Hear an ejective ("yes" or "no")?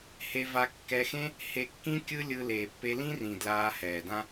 no